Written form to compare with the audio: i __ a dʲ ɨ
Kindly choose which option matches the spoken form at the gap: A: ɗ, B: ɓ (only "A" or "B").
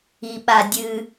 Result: B